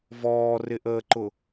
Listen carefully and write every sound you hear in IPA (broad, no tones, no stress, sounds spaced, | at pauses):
v ɔː r ɪ ʔ əː ǃ ʊ